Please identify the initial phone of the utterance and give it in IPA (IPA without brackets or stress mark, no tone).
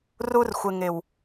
r